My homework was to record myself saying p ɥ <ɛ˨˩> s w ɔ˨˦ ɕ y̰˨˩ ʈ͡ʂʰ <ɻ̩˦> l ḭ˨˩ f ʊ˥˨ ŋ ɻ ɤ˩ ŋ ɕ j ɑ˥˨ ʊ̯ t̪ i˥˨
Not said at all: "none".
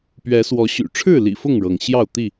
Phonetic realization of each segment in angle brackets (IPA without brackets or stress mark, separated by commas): ɛ˨˦, ɻ̩˥˨